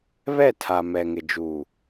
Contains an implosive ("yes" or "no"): no